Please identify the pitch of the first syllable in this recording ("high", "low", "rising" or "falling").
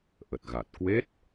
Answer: low